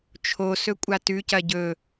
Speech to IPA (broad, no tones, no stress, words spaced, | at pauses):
t͡ʃʰosɵ kʷʼatʉcɐ ɟɵ